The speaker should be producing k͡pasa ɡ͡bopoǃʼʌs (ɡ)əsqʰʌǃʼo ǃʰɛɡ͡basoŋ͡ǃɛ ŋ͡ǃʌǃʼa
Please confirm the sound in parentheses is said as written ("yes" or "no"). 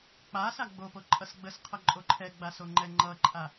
no